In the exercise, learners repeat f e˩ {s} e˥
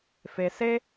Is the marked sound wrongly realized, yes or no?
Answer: no